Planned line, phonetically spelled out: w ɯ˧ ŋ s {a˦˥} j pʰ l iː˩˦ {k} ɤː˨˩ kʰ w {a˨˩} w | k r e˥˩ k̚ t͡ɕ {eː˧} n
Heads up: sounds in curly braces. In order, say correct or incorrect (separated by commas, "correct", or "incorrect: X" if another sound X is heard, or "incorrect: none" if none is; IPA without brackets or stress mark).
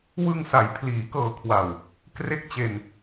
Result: incorrect: a˩˦, correct, correct, incorrect: e˧